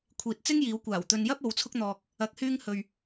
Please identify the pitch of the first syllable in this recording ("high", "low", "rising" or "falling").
low